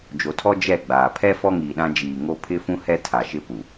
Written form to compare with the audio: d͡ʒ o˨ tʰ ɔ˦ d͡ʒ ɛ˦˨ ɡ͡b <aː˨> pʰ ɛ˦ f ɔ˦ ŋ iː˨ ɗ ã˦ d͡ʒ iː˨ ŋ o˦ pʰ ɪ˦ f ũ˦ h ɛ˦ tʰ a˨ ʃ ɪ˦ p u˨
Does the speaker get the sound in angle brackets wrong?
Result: no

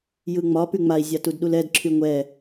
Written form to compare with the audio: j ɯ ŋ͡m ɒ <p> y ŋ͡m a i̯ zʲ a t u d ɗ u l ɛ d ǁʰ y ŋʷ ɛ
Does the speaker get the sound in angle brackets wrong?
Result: no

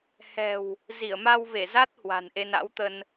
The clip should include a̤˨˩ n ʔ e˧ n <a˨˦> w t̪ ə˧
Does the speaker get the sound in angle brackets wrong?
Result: yes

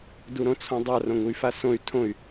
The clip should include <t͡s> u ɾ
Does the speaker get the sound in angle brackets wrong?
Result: yes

